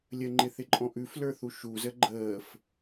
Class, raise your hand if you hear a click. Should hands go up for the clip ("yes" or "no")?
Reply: yes